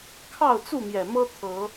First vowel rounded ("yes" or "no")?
no